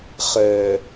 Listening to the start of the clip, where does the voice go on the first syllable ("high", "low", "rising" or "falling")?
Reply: low